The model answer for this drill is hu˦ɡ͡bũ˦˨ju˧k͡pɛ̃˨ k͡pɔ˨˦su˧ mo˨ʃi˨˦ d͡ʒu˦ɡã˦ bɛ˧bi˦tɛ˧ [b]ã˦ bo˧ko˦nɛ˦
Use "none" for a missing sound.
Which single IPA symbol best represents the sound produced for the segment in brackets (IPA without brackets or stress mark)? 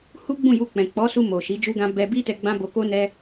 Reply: ɡ͡b